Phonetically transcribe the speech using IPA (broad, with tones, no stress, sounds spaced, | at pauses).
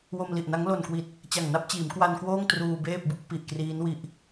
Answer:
w o˧ m l i˨˩ ʔ n a˦˥ ŋ l o˨˩ n k w i˨˩ t̚ | t͡ɕ a˨˩ ŋ n a˥˩ p̚ t͡ɕ iː˩˦ m k w a˧ n k w oː˥˩ ŋ t r uː˧ b eː˥˩ p̚ b u˥˩ k̚ p i˨˩ ʔ k r iː˦˥ n w i˦˥ ʔ